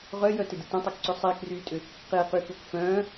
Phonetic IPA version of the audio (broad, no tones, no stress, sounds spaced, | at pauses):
ʁ œ j œ t ɪ d ɪ t œ̃ tˤ e k ǀ ʏ sˤ iː k r yː tʼ ʏ | q e q y k u k f œ̃ː